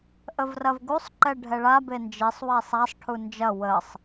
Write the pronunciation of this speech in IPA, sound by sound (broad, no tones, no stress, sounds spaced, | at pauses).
ʔ ə v r ɐ v ɡ u sˤ ǃ ɛ ɖʱ ɛ ɭ a b e n d͡ʒ e sˤ w ɛ sˤ a sˤ ʈʰ u n d͡ʒ ɐ w ə sˤ